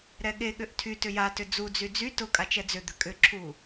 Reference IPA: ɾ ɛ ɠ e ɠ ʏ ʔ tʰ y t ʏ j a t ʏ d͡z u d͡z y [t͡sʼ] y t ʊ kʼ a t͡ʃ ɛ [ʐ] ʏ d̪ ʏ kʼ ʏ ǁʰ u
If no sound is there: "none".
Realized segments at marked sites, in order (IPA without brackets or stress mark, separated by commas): d͡z, d͡z